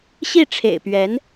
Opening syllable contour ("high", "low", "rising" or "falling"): falling